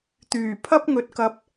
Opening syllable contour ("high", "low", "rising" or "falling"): low